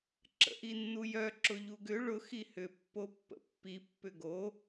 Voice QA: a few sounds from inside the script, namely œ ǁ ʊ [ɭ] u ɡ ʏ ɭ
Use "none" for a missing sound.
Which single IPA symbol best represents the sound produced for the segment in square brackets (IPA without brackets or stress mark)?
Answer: ʎ